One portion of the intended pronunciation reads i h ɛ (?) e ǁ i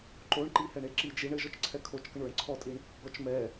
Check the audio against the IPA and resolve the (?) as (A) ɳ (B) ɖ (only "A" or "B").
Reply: A